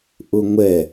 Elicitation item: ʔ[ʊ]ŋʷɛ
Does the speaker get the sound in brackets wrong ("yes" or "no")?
no